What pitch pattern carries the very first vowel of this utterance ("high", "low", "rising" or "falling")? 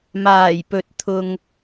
low